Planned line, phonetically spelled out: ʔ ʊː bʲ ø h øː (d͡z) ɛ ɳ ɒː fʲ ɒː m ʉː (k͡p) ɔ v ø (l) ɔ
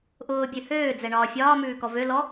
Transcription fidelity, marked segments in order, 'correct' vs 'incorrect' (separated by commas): correct, incorrect, correct